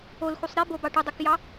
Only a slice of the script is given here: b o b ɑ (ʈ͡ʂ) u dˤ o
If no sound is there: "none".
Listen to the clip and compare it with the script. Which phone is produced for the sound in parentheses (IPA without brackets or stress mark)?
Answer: ʈ